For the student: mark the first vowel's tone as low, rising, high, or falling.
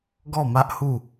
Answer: falling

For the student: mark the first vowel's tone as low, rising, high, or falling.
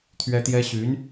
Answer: high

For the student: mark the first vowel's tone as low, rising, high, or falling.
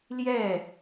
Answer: falling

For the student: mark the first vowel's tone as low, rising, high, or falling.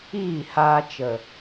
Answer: falling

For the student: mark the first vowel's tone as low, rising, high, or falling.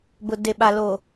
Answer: low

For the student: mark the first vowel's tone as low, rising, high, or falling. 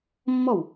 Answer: falling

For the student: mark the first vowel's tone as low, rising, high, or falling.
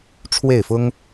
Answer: falling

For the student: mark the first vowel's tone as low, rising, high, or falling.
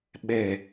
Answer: low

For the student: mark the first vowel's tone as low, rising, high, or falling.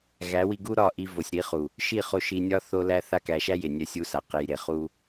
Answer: rising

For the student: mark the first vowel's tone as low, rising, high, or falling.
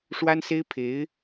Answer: high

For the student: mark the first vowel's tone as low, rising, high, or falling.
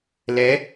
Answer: rising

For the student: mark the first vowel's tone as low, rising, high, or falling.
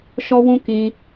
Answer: high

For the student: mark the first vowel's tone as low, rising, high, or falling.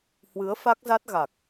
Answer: rising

